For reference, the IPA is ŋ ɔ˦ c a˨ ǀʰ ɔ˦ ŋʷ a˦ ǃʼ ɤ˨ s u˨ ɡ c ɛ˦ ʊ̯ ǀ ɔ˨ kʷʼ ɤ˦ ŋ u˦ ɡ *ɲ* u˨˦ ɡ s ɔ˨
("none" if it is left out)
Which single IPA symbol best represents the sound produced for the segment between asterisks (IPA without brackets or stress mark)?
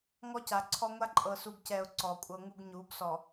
ɲ